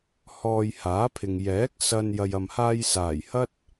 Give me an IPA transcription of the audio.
h ɔː˨ j h aː˨˥ pʰ ɪ˨ ŋ j ɛː˨˥ k̚ s ɐ˧ n j ɐ˨ j ɐ˨ m h aː˧ j s aː˨˩ j h ɐ˥ t̚

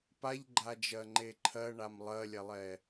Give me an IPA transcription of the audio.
p a ʎ ɡ͡ǃ a d͡ʒ ɜ ŋ͡ǃ e ǃʰ ɜ ɳ a m lˠ ɜ lʲ ɛ lˠ ɛ

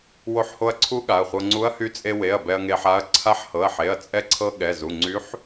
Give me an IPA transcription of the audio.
w o˧ ħ h o˧ ɐ̯ ǀʰ u˧˥ ɠ a˩˧˩ ɐ̯ χʷ ɤ˧ ŋ͡ǀ u˧˥ ɐ̯ h y˧˥ t͡sʼ e˧ w e˩˧˩ ɐ̯ b ɛ˧ ɐ̯ ŋ e˧ ħ a˧˥ ɐ̯ ǀʰ a˧˥ ħ h ɤ˩˧˩ ɐ̯ ħ e˩˧˩ ɐ̯ t͡sʼ ɛ˧ ǀʰ ɤ˧ ɠ ɛ˩˧˩ z u˩˧˩ ŋ͡ǀ y˧˥ ħ

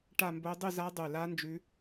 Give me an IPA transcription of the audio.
ʈ a˥˧ m b o˦˥ dˤ ʉ˥˧ z a˦˥ dˤ ʉ˧˩ l a˦˥ n d͡ʒ ʉ˦˥

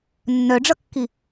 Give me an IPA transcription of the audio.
nː œ ɖ͡ʐ ʌ kː i

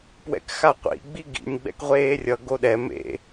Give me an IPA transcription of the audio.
p w ɛ̰ k x a qʷ ḭ ɡ͡b i ɡ ḭ nʲ ɡ͡b ɛ̰ k ʁʷ eː rʲ ʌ ɡ o ɗ ɛ m ḛ

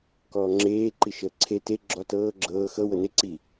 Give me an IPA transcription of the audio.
k ɔː ŋ͡ǁ eː ǃ i ʃ əː ǀʰ e t e ɡ͡ǁ ɔ t ɤː ɡ͡ǁ ɤː x ɤ w ɤ n e ǀ i

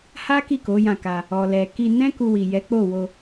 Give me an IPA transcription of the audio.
h a˦ k i˦˨ k o˨˦ j ã˦˨ k a˧ | ɔ˨ l ɛ˨ k i˧ n ɛ̃˦ k u˧ w i˨ j ɛ˨˦ k͡p o˦˨ w o˧

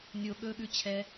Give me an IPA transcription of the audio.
nʲ o ɠ ɵ ɠ ʉ t͡ɕʰ ɛ

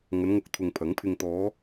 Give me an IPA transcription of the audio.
ŋ ɐ˨˧ n ŋ ʊ˨ k̚ t̪ʰ ʊ˨ ŋ pʰ ɐ˨˥ ŋ pʰ ɪ˧ ŋ t̪ ɔː˨˧

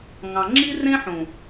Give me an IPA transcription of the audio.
ŋ ɑ̃˨ ŋ͡ǁ i˦ r ẽ˦ ħ ũ˨

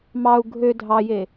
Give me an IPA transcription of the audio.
m ɑ u̯ ɡʱ ø dʱ ɑ j e

